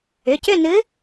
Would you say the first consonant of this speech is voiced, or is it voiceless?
voiceless